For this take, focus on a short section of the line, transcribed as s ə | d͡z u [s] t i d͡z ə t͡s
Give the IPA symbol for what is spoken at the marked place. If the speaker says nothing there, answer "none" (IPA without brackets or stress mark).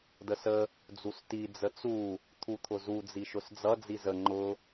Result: s